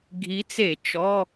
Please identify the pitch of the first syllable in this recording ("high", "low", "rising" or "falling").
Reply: rising